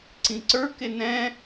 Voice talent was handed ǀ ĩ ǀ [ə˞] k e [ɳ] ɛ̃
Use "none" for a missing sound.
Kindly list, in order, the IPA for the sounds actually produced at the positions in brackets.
ə˞, n

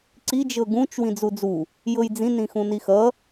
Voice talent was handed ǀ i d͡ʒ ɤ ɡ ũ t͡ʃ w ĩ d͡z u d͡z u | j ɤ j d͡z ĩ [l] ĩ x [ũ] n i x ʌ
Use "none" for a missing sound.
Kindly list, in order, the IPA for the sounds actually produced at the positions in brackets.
n, ũ

